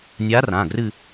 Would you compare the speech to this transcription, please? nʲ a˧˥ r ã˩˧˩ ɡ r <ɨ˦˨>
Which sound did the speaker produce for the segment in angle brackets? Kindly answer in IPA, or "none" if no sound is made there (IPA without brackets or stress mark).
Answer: ɨ˦˨